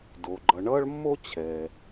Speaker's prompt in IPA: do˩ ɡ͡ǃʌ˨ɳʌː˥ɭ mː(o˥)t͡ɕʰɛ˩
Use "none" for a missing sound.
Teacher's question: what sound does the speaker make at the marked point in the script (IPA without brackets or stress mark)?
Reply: o˥